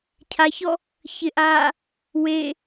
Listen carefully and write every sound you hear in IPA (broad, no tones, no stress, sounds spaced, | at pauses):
cʰ a ç ɔ | ç ɪ ʔ aː | w e